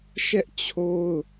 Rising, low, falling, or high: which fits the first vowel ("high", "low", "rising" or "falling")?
high